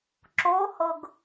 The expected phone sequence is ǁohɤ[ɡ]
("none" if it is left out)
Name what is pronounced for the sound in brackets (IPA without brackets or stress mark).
ɡ